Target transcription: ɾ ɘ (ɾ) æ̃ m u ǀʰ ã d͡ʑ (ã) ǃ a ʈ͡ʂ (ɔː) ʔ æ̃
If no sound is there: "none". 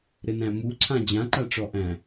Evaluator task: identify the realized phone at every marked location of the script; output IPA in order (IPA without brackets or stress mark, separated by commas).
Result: n, ã, ɔ